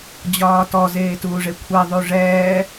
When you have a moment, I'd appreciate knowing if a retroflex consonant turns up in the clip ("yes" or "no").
yes